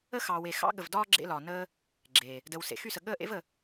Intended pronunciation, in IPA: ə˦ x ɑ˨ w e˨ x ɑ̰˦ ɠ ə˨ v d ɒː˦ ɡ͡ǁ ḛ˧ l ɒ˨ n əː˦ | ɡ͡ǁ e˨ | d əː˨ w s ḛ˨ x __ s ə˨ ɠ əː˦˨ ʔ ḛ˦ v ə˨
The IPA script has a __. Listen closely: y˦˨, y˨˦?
y˦˨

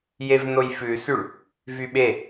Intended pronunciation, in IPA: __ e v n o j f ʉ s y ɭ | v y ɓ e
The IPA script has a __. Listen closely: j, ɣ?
j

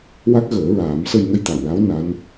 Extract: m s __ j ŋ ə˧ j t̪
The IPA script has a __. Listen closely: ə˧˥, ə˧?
ə˧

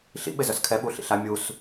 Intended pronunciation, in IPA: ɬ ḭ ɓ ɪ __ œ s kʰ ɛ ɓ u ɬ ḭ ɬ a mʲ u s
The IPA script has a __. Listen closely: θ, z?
z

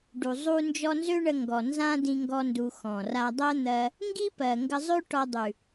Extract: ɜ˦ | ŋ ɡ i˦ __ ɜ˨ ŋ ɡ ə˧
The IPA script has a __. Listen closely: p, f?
p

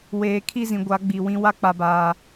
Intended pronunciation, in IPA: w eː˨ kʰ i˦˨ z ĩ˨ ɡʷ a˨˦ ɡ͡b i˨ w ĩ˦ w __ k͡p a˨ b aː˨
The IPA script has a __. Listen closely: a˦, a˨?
a˦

